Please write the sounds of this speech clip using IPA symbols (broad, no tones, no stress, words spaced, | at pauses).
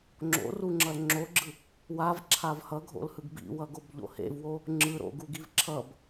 ŋ͡ǁo̰ruŋ͡ǁʌl ŋ͡ǁoɡ͡ǁɯ | wavǁʰav hʌɡʱo̰lhɯɡ bḭwʌɡobʎo̰ hḛvwo | ŋ͡ǁɯɾo̰ɡuɡiv ǁʰʌb